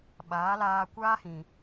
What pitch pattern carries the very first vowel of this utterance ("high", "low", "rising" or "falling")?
rising